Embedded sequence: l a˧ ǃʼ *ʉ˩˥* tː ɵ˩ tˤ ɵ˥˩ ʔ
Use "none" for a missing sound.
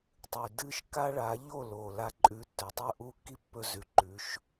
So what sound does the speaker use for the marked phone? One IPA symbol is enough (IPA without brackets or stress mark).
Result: ʉ˩˥